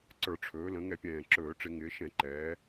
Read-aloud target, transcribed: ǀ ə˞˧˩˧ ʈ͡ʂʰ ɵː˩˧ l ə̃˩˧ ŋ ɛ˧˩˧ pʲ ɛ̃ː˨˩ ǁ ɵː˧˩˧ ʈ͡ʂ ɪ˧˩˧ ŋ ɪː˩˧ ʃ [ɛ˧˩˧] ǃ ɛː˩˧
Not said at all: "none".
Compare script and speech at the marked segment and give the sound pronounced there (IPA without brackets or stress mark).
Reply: ɛ̃˧˩˧